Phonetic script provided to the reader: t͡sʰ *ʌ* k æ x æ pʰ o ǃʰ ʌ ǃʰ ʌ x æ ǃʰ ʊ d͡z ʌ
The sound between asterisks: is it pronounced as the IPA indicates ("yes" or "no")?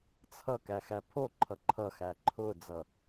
yes